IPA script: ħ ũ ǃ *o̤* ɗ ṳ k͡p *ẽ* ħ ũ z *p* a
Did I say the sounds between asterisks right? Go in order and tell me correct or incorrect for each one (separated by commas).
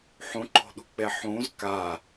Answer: correct, incorrect, incorrect